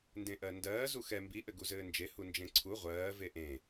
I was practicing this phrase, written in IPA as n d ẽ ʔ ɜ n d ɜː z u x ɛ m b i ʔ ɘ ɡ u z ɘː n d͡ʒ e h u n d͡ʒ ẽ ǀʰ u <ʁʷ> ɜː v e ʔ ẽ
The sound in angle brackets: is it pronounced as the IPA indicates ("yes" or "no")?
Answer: yes